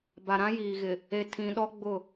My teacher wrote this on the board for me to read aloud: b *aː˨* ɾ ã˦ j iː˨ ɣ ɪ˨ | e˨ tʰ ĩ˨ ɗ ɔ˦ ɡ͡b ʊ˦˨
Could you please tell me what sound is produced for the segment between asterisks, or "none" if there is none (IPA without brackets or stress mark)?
a˨